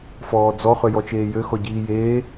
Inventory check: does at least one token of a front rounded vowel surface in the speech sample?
yes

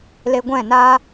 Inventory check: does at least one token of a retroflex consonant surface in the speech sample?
no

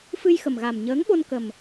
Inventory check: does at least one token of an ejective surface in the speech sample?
no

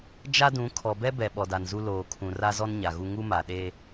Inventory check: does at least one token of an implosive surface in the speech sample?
yes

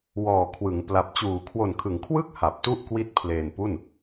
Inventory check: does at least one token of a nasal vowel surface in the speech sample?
no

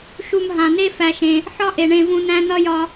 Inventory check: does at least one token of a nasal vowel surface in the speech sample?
yes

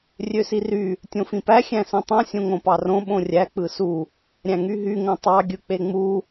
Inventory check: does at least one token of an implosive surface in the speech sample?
yes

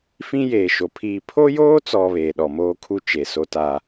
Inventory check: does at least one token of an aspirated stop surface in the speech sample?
yes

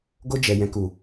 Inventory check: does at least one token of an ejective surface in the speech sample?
no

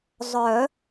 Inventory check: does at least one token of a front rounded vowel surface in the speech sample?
yes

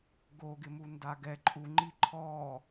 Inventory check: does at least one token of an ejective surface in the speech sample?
yes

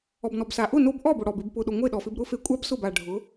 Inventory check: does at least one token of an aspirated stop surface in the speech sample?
no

